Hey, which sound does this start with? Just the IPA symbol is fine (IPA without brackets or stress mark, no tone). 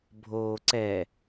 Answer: bʱ